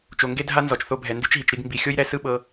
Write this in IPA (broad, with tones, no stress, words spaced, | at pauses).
t͡ʃo˨ŋɡe˦dʱa˦ nzɔ˨t͡ʃθo˧bʱɛ˨ ndɯ˧t͡ʃɦi˨t͡ʃɾi˧ɡ mbi˨xʲo˦jɾɛ˧ sɯ˦ɓɤ˧